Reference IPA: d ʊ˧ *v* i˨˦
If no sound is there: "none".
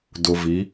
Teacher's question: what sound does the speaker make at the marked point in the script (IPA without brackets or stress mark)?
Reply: v